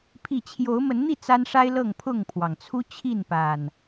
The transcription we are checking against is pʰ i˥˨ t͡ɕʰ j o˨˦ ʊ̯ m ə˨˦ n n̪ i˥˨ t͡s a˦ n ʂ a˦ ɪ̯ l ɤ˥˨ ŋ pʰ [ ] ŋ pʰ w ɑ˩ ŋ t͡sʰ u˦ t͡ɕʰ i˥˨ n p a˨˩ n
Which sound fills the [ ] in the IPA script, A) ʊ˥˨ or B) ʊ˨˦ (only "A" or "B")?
A